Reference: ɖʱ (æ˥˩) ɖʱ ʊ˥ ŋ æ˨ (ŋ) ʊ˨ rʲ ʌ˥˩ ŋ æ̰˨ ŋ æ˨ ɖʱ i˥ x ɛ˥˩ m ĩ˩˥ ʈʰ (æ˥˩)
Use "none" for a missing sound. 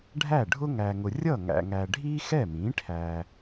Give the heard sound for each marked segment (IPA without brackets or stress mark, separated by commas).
æ˥˩, ŋ, æ˨